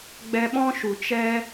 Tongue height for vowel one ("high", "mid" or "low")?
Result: mid